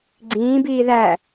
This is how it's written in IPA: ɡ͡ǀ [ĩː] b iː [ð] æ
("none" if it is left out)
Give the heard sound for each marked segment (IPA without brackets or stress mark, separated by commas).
ĩː, ð